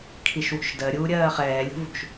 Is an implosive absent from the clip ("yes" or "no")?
yes